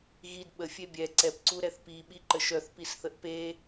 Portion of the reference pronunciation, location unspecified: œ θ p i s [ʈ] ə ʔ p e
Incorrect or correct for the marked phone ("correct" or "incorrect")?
incorrect